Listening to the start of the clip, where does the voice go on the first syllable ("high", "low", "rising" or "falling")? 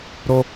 high